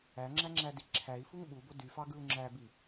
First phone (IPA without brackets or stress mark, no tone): æ